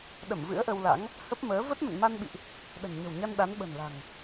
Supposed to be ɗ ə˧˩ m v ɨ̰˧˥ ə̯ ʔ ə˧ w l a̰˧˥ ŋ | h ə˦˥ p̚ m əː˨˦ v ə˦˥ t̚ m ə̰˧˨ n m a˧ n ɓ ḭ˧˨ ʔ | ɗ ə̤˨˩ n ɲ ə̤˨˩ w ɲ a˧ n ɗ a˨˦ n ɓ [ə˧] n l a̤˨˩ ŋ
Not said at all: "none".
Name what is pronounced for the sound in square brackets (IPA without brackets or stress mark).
ə̤˨˩